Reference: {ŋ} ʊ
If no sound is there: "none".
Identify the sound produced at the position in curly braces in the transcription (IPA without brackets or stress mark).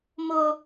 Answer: m